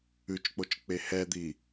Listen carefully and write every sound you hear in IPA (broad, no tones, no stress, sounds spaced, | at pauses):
ʉ t͡ʃ k͡p o t͡ʃ k͡p e h ɛ d̪ i